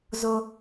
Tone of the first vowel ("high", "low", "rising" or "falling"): high